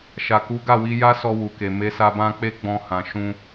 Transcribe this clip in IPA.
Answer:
ʃ a˨ k u˨˦ ɡ a˦˨ w i˧ j a˦ s ɔ˧ w u˨ k e˨ m e˧ s a˧ b ã˦ k͡p e˦ ɡ͡b ɔ̃˧ h ã˨ ʃ ũ˧

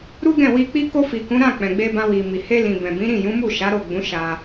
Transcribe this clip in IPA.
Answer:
ɾ u˦ ɡ ɛ̃˦˨ w i˧ k͡p i˧ k o˧ f i˨ k ũ˨˦ ɾ ã˦˨ k͡p ɛ̃˨ ɡ͡b e˧ b ã˧ w i˨ m i˨ h e˧ l ĩ˨ b ɛ̃˨ b ĩ˨˦ ɾ ĩ˦˨ j ũ˨˦ m u˦˨ ʃ a˨˦ ɾ o˦˨ ɡ͡b ũ˨˦ ʃ a˧

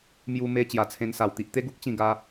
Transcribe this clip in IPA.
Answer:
m j u˧ m e˧ t͡ɕ j a˨˩ t͡sʰ ẽ˧ n s a˨˩ w t̪ i˨ ʔ t̪ e˦ ɡ u˦ k̚ t͡ɕ ĩ˥˧ ɡ a˦

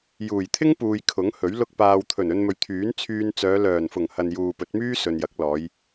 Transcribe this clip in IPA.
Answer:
j uː˨˩ j t̪ʰ ɪ˥ ŋ p uː˨ j kʰ ʊ˨˥ ŋ h ɵ˨˥ ɥ l ʊ˧ k̚ p aː˨ w t̪ʰ ɵ˨˩ n ɵ˧ n m ɵ˨ ɥ t̪ʰ yː˨˥ n t͡sʰ yː˧ n t͡s œː˨˧ l œː˨˩ n f ʊ˨˩ ŋ h ɐ˨ n j uː˨ p ɵ˨˥ t̚ m yː˥ s ɵ˨ n j ɐ˨˥ k̚ l ɔː˨˧ j

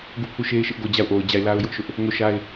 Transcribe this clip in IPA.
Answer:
ɡ u˦˨ pʰ u˦˨ ʃ e˦ ɪ̯ ʃ ɪ˦ ʔ ɡ o˦˨ d͡ʑ a˦˨ ʊ̯ ʔ o˨ ʊ̯ d͡ʑ a˦˨ ɪ̯ l a˦ ʊ̯ j ʊ˦ ʔ ʃ ʊ˦ ʔ | ŋ o˦˨ ʃ a˦ ɪ̯

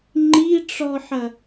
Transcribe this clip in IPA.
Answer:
ŋ͡ǃ i ʈ͡ʂ ɔ ħ ɐ

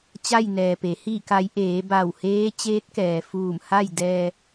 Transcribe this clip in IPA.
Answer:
t͡ɕ a˥˨ j n ɛː˩ p e˩˧ h iː˧˩ k a˩˧ j ʔ eː˩˧ b a˧˩ w h eː˧˥ t͡ɕ eː˧˥ t̚ k ɛː˩ f uː˧˩ m h a˥˨ j d ɛː˧

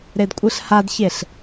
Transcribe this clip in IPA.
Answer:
ɾ e d kʷʼ ɨ ɬ h a d ç e ɬ

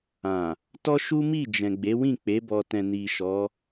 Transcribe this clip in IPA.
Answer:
ã˨ | t ɔ˦ ʃ u˦ m i˦˨ d͡ʒ ɛ̃˨ ɡ͡b e˨˦ w ĩ˦˨ k͡p e˨˦ b ɔ˧ t ɛ̃˧ n i˨ ʃ ɔ˨˦

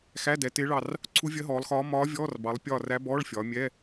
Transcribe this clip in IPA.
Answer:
x æ˧˥˧ d ɛ˩˧ t ɪː˧˥ ɭ ɑ˦˨ r | ǀʰ u˧˥ vʲ ɜ˧˥ ɦ ɔː˩˧ lˠ x ɒː˧˥ m ɒː˧˥ vʲ ɔː˧˥˧ r b ɑ˩˧ lˠ pʲ ɒː˦˨ r æ˧˥ b ɔː˧˥˧ ɭ fʲ ɒː˩˧ mʲ ɛ˧˥˧

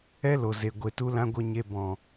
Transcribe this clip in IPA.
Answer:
ɛ˦ l o˨ z e˨ ɡʷ e˧ t u˦ l ã˦ ɡʷ ə˧ ɲ e˧ b ɔ̃˨

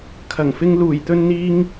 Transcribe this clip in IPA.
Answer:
kʰ ɐ˨˩ ŋ f ɪ˧ ŋ l uː˨˩ j t̪ ɵ˧ n n̪ iː˧ ŋ

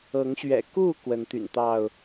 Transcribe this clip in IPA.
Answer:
ɤ˨˦ ŋ ɕ ɥ ɛ̰˨˩ k u˥˨ k w ə˨˦ n t̪ y̰˨˩ n t̪ ɑ˥˨ ʊ̯

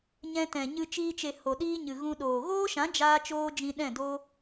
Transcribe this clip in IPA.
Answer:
ɲ ɛ̃˧ t ɛ̃˨ ɲ ɨ˧ t͡ʃ iː˧ t͡ʃ e˨ h o˨ ɗ iː˦ ɲ ɨ˨ ɣ ũ˧ ɗ oː˨ ɣ oː˦ ʃ ã˨˦ d͡ʒ aː˦ t͡ʃ oː˦ d͡ʒ ĩ˧ ɗ ɛ̃˦˨ d oː˦

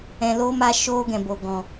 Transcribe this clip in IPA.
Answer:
ɛ̃˧ l oː˦ m a˧ ʃ oː˦ ɡ ɛ̃˨ b o˨ ɡ ɔ̃˨

